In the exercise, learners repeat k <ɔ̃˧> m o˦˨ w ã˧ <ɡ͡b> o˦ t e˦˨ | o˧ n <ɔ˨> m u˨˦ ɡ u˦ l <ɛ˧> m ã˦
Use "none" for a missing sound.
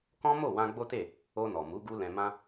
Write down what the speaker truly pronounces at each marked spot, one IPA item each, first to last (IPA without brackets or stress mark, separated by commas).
ɔ̃˦, ɡ͡b, ɔ˨, ɛ̃˧